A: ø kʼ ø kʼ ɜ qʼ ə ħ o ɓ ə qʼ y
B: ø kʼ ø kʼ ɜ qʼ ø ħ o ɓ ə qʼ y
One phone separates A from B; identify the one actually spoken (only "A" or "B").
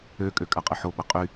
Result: A